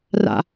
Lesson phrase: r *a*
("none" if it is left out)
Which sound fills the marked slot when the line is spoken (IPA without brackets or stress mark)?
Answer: a̰